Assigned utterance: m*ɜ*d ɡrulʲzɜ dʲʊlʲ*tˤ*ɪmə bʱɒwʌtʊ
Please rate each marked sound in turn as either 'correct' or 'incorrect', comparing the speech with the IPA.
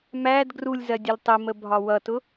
incorrect: æ, correct

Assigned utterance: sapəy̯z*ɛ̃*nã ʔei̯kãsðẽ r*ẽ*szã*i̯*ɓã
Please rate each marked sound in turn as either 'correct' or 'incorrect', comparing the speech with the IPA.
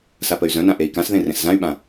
incorrect: œ̃, correct, incorrect: y̯

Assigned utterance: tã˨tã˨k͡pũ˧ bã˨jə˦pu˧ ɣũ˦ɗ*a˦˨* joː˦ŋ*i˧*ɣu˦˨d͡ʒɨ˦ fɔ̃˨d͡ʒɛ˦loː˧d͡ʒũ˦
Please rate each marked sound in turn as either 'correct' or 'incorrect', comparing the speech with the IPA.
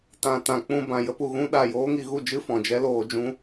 correct, correct

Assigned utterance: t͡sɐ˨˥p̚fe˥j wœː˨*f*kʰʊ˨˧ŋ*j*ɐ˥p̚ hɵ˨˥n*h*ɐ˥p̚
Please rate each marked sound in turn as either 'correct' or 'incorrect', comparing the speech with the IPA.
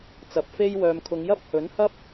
incorrect: m, correct, correct

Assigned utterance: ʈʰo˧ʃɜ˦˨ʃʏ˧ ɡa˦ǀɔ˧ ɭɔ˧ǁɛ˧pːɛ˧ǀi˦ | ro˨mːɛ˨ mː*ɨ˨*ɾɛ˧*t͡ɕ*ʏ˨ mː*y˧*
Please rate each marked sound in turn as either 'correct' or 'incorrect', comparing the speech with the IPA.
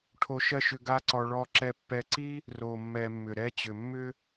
incorrect: ʏ˨, correct, incorrect: ʏ˧

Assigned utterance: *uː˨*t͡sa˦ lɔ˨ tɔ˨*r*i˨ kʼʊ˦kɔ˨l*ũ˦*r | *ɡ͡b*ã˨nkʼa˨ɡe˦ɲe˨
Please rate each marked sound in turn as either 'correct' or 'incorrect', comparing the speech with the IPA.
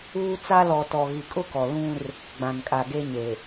incorrect: uː˦, incorrect: ɣ, correct, correct

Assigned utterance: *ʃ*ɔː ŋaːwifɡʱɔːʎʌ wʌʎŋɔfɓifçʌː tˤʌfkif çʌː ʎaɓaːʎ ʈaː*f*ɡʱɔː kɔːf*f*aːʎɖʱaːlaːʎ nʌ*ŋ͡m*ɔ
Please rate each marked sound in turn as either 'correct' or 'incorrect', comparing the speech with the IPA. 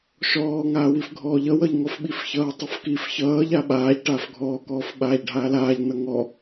correct, correct, incorrect: ɓ, incorrect: ŋ

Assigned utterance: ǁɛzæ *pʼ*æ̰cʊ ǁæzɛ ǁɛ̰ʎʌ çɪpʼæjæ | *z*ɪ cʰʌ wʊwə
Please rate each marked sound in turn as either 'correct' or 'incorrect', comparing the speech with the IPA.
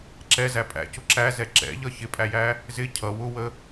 correct, correct

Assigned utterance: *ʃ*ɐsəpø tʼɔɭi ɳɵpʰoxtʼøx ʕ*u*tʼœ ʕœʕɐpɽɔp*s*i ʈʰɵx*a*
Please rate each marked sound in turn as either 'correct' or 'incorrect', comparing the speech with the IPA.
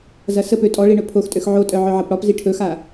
incorrect: z, incorrect: o, incorrect: z, correct

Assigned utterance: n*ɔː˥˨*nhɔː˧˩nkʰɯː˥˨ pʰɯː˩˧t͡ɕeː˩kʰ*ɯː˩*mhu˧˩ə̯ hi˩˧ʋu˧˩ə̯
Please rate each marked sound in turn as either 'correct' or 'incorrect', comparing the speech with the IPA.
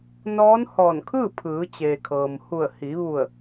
incorrect: ɔː˧˥, incorrect: ɤː˩

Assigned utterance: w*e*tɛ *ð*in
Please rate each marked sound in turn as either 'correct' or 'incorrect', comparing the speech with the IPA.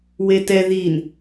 correct, correct

